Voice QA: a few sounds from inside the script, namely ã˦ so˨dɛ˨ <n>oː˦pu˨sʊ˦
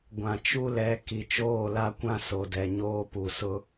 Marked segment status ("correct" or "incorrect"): incorrect